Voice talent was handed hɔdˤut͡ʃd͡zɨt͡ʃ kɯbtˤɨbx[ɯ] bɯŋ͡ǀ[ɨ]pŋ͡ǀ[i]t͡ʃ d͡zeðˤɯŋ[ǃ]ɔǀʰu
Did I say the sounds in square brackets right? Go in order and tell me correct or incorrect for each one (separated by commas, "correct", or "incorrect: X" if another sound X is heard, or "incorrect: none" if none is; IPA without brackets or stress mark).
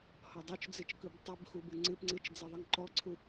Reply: incorrect: u, correct, incorrect: ɨ, correct